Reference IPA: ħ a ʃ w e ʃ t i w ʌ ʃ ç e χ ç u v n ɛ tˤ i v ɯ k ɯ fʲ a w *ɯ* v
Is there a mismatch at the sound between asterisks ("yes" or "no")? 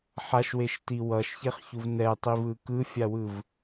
no